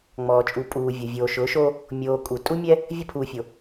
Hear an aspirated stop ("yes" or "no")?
yes